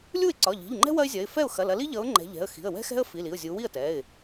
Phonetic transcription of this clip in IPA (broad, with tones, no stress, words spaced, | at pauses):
lʲu˥˩ɪ̯ǀɒ˩˧˩ʎi̤˩˧˩ʎŋ͡ǃɛ̤˥ wɐ˥ɪ̯zʲɐ˩˧˩ɪ̯ fɛ˥˩ʊ̯xɐ˩˧˩lɐ˨˦li˥ ʎʌ˨˦ʊ̯ ŋ͡ǃɛ̤˨˦ʎɛ̤˩˧˩ə̯ xi̤˩˧˩ə̯wɛ̤˥xɛ̤˥ə̯ fi˩˧˩li˩˧˩ʊ̯zʲu˨˦ wi˥˩ə̯tɛ˩˧˩ɪ̯